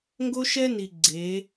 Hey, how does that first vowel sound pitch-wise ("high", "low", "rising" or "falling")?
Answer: high